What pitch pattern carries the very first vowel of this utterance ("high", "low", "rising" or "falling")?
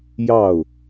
falling